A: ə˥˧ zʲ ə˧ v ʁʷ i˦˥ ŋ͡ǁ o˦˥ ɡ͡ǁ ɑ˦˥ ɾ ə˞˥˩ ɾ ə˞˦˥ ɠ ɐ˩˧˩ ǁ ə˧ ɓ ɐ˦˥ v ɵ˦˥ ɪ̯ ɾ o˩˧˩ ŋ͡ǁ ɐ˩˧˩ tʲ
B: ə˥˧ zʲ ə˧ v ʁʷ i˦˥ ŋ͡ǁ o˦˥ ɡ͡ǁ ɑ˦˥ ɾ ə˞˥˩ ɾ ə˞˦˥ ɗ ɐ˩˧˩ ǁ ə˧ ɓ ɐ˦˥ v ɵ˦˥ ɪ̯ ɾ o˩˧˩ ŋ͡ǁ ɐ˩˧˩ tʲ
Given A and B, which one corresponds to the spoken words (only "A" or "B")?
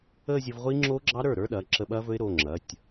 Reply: B